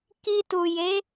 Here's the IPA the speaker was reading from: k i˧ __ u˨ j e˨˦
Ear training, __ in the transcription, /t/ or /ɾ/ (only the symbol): t